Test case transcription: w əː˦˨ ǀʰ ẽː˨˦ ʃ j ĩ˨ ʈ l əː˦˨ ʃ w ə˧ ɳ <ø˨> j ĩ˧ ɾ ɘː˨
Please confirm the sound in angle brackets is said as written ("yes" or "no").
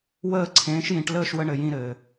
no